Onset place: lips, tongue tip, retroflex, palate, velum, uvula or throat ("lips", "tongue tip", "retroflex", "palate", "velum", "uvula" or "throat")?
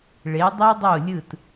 retroflex